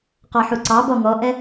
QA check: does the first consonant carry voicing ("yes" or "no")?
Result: no